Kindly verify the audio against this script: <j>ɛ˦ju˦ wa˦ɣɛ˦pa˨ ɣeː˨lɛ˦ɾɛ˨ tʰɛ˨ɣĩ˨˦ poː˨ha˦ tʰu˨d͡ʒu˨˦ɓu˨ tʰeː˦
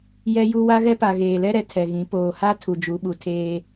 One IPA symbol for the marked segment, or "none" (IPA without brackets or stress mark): j